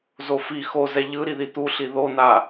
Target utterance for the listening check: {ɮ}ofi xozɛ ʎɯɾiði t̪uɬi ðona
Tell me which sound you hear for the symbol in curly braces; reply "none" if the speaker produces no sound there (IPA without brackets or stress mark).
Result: z